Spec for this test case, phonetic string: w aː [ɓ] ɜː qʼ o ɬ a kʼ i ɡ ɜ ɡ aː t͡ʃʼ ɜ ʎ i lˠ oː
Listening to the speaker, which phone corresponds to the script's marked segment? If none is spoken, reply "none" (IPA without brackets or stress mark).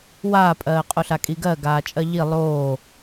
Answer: pʼ